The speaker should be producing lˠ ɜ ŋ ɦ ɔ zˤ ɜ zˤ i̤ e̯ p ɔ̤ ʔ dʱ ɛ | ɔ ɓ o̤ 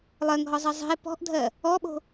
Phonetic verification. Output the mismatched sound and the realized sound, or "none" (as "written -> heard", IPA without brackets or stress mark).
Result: ɛ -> ɜ